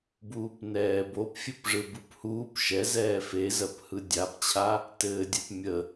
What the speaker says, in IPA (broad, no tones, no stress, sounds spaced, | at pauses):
b uː p n ɛː b o p fʲ ɘ p ʐ ɯ b ɯ p h uː p ʃ ɛ z ɛː f e z ɜ p h ɯ dʲ a p t͡ɕʰ a | t ɘː dʲ ɜ p mʲ ə